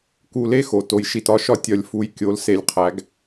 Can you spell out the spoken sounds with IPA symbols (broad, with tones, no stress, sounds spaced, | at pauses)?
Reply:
k u˧ l e˥ x o˩ t o˧ j ʃ i˧ t ɒ˧˥ ʃ ɒ˥ tʲ ɒ˧ lʲ f u˧˥ j kʲ o˩˥ l s e˧ lʲ qʰ æ˩˥ ɡ